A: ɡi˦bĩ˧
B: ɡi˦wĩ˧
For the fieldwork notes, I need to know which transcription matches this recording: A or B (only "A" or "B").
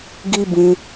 A